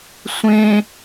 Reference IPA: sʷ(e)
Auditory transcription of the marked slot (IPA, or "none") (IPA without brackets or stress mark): ẽ